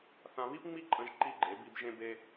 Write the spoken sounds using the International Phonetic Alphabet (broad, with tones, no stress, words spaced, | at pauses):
θã˧βi˦pŋ͡mi˦ǃʼə̃˧ʒ ǃi˦˨ɡ͡ǃe˨˦bi˧b ʒẽ˦be˦